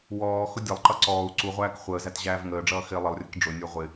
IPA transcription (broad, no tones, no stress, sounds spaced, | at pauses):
w ɔː x ʊ dʲ ʌ lˠ ǃ ʌ ǀ ɔː u̯ ǀ u ʁʷ æː k χʷ əː z æ t ʑ æː v ŋ əː ɖ͡ʐ ʌː x ɪː lˠ ə lˠ rʲ ə k ɖ͡ʐ ʊ nʲ ə˞ ʁʷ ɪ